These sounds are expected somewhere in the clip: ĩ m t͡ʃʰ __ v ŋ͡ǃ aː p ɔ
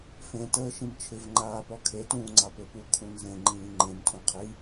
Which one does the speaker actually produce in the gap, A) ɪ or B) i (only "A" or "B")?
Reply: A